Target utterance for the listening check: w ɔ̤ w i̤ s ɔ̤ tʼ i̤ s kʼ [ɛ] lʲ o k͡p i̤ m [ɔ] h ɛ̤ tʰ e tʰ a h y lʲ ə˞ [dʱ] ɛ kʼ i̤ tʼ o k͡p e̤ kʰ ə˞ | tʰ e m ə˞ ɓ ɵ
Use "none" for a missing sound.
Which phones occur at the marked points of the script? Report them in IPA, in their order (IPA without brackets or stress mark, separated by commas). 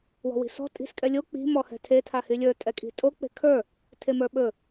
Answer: ɛ, ɔ, tʼ